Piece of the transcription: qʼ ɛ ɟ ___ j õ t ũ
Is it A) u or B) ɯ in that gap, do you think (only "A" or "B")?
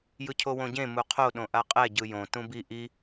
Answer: B